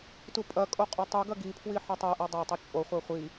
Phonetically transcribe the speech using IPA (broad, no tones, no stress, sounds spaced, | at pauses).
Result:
t u pʼ ɐ kʼ o qʼ o tˤ ɨ ɡ ɐ ɡ i pʰ w i ħ ɘ tˤ e ʔ e dˤ ɐ tˤ ɘ t͡ʃʼ o χʷ ɛ χʷ i